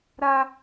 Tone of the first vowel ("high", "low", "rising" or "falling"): high